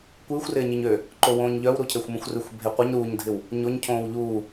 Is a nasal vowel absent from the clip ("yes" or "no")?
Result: no